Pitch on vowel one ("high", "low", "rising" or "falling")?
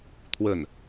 falling